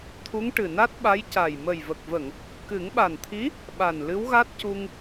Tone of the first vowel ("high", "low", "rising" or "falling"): rising